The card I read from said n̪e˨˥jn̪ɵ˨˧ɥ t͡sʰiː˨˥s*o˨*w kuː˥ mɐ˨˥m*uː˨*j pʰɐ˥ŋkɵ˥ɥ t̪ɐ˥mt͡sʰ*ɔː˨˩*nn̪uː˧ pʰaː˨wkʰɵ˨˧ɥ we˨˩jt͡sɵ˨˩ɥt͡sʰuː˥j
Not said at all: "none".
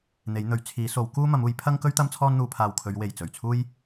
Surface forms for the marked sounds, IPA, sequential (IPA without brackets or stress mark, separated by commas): o˨˥, uː˨˥, ɔː˥